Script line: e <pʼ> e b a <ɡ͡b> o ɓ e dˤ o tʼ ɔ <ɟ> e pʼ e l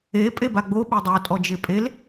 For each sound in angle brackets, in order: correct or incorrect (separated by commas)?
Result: correct, correct, incorrect